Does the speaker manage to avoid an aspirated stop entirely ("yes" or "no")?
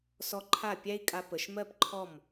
no